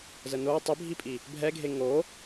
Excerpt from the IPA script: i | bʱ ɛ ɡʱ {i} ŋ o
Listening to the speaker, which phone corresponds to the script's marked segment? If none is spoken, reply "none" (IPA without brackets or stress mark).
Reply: e